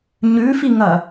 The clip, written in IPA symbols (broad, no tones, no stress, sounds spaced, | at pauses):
ɲ ʉ f i ŋ ɐ